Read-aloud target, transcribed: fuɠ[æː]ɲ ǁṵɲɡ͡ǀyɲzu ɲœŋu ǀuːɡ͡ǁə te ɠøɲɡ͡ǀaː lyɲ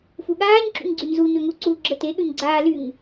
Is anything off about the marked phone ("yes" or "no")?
yes